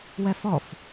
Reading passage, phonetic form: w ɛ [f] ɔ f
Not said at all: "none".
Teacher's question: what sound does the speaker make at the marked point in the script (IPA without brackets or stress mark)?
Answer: f